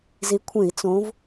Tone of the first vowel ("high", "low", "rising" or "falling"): rising